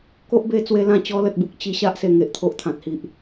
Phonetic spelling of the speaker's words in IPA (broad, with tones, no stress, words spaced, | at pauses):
ko˦ʔbe˧ t͡swe˧lã˦ t͡ɕɔ˧lə˨t̚bu˨k̚ t͡ɕi˧ɕa˦ʔ se˨˩ŋe˨ʔt̪ʰo˨ʔ t̪ʰã˨t̚hi˨ʔ